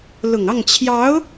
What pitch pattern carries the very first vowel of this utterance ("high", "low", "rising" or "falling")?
low